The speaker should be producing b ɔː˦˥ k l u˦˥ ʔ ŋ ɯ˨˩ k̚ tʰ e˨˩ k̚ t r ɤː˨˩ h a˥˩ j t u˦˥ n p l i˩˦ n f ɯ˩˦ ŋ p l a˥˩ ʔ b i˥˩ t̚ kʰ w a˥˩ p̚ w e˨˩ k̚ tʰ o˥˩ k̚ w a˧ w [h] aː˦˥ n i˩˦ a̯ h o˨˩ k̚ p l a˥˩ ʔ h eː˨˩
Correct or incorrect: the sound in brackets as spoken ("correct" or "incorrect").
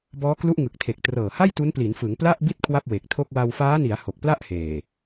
incorrect